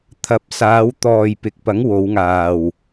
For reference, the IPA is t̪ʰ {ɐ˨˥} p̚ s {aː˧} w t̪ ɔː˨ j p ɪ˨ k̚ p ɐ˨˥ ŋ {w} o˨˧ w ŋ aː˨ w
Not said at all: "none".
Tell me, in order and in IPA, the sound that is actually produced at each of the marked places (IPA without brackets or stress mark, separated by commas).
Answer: ɐ˨˥, aː˨˧, w